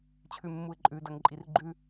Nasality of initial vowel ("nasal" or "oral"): oral